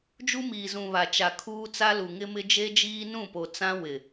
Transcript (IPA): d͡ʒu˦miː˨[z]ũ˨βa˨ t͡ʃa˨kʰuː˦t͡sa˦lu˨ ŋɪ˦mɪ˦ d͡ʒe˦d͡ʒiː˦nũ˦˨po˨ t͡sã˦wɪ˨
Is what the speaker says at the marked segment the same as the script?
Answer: yes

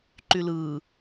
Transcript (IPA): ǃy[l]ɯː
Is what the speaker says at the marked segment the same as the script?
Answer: yes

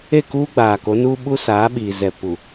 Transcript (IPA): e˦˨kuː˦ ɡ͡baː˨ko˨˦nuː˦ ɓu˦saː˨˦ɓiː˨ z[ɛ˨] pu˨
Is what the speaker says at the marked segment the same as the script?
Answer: yes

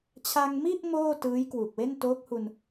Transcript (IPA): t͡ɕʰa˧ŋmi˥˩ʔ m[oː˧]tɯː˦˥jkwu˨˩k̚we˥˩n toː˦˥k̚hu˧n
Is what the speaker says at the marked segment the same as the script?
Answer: no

